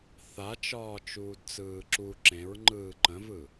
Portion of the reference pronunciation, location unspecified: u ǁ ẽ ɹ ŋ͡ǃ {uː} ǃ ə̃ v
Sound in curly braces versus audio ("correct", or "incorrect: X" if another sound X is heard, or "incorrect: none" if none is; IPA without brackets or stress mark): incorrect: ɯː